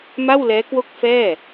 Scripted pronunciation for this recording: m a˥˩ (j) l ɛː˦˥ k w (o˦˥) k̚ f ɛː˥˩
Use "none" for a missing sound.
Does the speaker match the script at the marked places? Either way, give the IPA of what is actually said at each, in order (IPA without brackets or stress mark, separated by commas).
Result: w, o˦˥